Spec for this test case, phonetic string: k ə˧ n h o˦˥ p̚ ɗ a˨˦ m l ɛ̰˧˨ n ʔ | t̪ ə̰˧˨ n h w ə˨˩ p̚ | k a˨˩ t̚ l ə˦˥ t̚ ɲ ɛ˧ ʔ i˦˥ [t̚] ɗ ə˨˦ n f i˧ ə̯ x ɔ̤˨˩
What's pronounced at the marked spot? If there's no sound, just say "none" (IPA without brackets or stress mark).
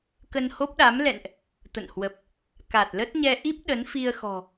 p̚